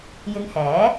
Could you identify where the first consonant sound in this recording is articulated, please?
palatal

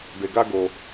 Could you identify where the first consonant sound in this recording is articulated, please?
labial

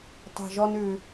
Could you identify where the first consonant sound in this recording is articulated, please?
alveolar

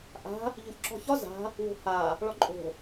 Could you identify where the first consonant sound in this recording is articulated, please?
glottal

